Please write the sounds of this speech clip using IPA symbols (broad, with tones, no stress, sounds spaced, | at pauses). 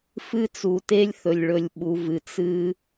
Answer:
f ɨ˧ t͡s u˩ t e˧ lʲ θ ɵ˩ lʲ ɭ ɵ˩ lʲ ɓ u˩ v ɨ˩ t͡s ɨ˧